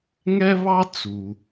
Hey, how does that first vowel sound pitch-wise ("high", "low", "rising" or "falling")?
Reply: high